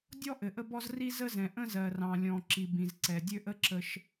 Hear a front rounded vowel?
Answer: yes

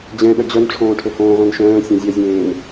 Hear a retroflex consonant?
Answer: yes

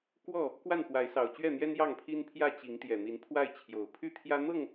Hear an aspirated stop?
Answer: yes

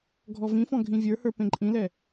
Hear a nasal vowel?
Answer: yes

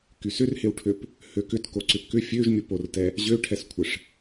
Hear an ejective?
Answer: no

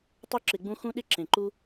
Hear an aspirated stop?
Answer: no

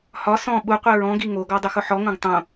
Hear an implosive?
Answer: yes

